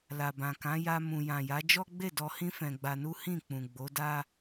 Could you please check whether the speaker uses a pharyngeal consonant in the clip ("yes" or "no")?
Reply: no